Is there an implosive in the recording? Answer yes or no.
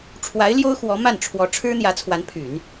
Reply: no